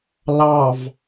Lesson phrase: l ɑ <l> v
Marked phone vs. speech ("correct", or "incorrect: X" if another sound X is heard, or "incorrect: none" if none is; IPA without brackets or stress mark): incorrect: none